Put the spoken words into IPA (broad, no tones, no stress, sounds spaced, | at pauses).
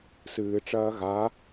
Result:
s ɨː ʈ͡ʂ ɐː ɣ a